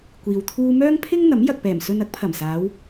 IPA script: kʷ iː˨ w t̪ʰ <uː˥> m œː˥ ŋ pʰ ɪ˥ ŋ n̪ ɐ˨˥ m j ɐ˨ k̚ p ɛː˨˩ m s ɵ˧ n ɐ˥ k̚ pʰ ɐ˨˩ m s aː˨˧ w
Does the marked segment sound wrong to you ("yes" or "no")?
no